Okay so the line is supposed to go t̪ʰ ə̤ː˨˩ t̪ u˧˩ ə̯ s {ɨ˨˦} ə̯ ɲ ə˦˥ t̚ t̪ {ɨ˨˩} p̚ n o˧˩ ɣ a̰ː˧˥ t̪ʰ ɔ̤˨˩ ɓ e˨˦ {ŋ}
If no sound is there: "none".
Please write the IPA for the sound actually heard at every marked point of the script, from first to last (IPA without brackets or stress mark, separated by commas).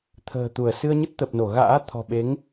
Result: ɨ˧, ə˨˩, ŋ